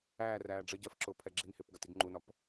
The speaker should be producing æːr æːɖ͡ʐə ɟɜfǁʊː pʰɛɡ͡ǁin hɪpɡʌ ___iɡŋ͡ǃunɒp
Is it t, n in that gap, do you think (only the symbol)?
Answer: t